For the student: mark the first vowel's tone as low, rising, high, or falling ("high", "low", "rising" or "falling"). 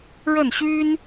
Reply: falling